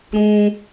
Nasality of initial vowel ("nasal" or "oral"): nasal